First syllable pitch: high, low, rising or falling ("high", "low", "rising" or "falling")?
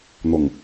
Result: low